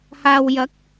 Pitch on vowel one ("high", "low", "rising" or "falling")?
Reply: low